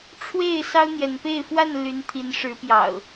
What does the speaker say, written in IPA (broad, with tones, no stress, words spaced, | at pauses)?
ʈ͡ʂʰwe˥˨ɪ̯ sɑ˦ʊ̯n̪jɛ˨˦npe˥˨ɪ̯ fwa˥˨nly˨˦n t̪ʰi˨˦nʂɻ̩˨˦pjɑ̰˨˩ʊ̯